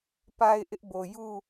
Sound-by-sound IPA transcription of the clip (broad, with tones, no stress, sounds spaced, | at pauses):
p a˦ ɪ̯ ʔ ɪ˦ ʔ b o˨ j u˦˨